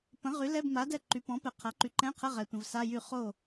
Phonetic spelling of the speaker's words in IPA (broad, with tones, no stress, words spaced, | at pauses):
pə̃˩˥ʁy˩˥lɛ˧˥˧bma˩˥ dɛ˥˩ǃy˩˥pɔ̃˩˥pɛ˨ qʰa˩˥ǃy˨ǃɛ̃˧˥˧qʰə˧˥˧ ʁɛ˨tʷə̃˨v sa˧˥˧jy˥˩ χo˥˩